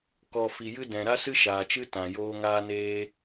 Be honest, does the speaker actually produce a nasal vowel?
yes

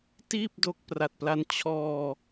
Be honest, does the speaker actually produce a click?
no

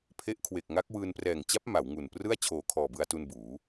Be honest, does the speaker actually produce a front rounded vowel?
no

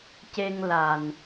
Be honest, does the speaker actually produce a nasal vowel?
no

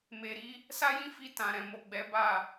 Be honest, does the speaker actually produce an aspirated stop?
no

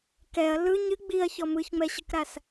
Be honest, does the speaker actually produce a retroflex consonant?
no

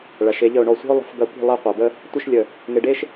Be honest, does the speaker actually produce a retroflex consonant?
yes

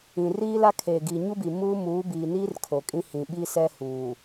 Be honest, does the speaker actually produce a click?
no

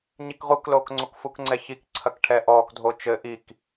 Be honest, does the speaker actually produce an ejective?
no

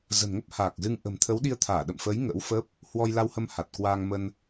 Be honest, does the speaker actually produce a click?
no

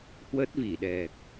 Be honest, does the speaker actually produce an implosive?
yes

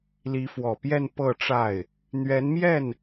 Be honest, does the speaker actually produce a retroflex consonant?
yes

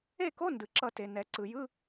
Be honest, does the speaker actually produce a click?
yes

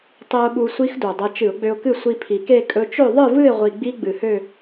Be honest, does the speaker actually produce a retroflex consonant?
no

